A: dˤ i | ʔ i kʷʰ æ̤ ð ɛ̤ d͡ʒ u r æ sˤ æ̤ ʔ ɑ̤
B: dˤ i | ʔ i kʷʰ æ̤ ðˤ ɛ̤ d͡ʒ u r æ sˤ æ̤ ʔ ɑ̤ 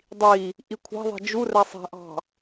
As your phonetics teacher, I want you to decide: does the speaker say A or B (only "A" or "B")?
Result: B